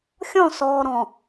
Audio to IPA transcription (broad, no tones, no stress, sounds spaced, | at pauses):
xʲ ɔ̃ s ɔː ɾ ɔ̃